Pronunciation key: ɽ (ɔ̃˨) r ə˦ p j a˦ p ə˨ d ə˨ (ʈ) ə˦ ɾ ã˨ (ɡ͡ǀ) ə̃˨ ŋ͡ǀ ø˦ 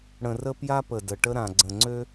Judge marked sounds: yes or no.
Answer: no, yes, yes

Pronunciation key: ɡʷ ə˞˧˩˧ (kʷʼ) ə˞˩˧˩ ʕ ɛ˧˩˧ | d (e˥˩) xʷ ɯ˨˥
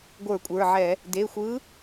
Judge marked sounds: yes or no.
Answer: yes, no

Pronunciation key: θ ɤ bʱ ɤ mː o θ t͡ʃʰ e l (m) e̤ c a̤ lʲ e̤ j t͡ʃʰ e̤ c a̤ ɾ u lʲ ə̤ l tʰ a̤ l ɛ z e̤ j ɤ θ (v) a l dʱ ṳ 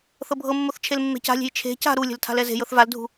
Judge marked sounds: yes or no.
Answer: no, yes

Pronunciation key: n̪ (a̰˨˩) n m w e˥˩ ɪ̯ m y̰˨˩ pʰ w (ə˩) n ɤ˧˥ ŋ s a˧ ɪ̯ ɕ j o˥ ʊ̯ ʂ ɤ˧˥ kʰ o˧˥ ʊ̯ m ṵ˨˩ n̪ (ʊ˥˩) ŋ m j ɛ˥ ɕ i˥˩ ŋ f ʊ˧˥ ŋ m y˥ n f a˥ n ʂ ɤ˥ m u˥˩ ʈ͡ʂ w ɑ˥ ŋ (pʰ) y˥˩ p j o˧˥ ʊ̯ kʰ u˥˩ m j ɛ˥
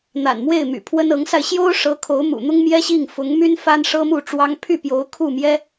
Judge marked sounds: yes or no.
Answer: yes, no, no, yes

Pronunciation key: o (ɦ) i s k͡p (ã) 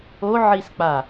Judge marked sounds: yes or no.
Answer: no, no

